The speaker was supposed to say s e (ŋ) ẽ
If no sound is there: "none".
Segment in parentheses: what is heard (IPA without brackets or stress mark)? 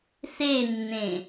nː